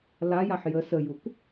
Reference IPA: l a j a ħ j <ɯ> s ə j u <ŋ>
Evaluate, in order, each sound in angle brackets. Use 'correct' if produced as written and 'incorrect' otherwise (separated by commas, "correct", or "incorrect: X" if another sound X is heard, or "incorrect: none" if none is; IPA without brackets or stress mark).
incorrect: ə, incorrect: k